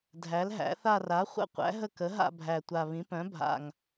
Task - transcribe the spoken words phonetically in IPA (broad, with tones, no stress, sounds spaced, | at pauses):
dʱ æ˩˥ l ɦ æ̰˩˥ θ a˥˧ r a˩˥ χʷ ə̰˥˧ qʷ æ̰˩˥ ɦ ə˥˩ k ə˩˥ ɦ a̰˥˧ bʱ æ˨˩ tʷ a˨˩ β ĩ˩˥ p œ̃˩˥ bʱ a̰˨˩ ŋ